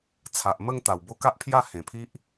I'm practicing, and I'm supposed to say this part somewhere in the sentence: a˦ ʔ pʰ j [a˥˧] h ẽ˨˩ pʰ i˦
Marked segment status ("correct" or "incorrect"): correct